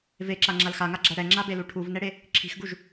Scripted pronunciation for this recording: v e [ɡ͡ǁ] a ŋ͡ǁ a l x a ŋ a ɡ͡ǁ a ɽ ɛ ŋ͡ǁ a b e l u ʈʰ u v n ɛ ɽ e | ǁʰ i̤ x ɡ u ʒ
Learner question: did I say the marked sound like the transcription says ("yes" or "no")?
no